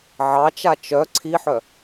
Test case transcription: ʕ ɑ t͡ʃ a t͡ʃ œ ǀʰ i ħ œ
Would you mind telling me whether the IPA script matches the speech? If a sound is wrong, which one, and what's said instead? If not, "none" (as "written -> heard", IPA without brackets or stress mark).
none